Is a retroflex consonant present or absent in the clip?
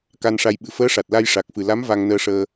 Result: present